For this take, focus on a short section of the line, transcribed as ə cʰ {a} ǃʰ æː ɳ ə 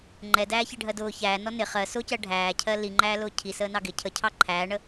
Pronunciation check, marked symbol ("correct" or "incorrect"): incorrect